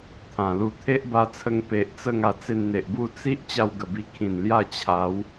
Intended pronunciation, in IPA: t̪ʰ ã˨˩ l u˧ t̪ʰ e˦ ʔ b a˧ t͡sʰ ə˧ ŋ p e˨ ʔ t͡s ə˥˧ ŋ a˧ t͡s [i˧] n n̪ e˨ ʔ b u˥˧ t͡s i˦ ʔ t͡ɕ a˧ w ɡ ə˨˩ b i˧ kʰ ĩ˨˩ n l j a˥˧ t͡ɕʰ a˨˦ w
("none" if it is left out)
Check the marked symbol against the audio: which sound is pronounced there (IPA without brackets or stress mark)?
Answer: e˧